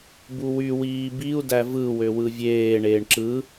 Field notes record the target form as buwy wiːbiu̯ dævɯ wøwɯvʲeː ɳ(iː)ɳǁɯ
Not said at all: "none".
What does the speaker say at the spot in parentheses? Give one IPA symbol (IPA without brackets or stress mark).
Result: eː